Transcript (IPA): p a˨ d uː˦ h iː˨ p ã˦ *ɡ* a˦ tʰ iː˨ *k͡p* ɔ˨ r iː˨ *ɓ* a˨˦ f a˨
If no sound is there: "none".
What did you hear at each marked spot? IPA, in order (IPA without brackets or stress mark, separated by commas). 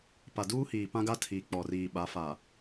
ɡ, k͡p, ɓ